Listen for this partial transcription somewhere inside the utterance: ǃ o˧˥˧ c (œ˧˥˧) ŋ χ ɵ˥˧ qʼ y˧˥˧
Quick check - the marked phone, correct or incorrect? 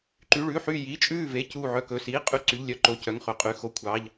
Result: correct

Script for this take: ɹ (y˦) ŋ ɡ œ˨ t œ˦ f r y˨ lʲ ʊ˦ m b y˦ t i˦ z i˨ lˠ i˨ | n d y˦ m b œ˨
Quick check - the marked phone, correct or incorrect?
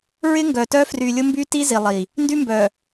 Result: incorrect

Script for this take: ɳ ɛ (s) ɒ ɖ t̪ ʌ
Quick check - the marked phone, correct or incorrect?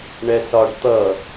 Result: correct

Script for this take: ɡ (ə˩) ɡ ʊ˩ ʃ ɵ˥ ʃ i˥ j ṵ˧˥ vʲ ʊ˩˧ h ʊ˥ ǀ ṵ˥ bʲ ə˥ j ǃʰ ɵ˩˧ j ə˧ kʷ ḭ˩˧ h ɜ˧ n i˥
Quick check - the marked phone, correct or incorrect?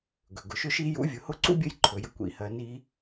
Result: incorrect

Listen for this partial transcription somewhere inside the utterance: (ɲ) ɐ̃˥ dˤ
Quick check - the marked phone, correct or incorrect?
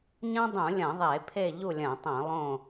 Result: correct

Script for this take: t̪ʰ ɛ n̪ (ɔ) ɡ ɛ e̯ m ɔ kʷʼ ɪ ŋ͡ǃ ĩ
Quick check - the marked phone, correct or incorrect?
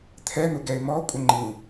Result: incorrect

